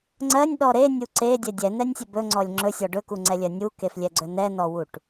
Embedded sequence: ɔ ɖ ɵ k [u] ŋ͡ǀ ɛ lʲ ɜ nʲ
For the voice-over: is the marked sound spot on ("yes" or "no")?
yes